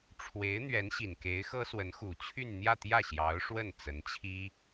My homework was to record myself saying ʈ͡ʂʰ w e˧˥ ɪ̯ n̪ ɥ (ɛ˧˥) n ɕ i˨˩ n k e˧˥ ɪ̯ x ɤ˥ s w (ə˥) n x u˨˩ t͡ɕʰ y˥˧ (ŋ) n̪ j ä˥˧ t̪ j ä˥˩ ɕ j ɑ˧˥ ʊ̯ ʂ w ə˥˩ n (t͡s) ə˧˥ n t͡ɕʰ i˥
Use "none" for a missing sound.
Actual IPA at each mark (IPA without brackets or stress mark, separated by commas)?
ɛ˧˥, ə˧˥, n, t͡s